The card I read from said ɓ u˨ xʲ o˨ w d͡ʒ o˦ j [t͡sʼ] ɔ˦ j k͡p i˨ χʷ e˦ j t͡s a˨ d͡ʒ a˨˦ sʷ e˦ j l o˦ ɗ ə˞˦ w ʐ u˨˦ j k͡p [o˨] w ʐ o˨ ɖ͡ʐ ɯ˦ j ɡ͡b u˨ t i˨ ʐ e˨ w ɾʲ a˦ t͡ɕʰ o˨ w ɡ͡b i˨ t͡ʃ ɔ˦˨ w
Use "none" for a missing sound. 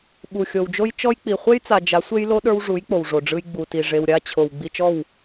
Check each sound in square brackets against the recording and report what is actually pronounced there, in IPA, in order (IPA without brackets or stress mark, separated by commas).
t͡ʃ, o˨